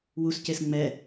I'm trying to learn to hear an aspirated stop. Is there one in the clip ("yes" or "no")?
no